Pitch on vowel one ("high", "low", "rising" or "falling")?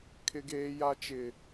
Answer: high